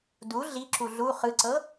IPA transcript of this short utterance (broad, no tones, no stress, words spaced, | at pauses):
du ɮiǁu ɮu χɯǀɤ